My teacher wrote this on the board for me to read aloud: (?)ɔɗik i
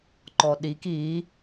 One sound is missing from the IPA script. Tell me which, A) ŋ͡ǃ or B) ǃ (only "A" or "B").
B